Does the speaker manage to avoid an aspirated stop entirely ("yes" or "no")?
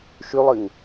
yes